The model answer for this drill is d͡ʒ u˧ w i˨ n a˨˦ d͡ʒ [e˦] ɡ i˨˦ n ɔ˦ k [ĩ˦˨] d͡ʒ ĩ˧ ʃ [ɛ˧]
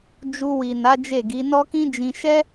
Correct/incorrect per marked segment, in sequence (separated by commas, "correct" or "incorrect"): incorrect, incorrect, incorrect